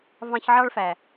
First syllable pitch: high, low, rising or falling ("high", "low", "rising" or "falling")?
high